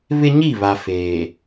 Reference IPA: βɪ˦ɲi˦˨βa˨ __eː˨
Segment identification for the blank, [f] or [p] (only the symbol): f